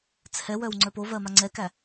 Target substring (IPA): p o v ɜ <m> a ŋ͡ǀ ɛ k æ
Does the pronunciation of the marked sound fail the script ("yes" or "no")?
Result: no